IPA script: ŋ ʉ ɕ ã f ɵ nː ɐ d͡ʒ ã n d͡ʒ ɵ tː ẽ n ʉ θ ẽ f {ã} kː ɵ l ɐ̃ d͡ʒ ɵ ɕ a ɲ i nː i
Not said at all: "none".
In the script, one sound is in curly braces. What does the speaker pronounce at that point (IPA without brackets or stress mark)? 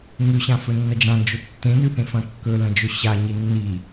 ɐ̃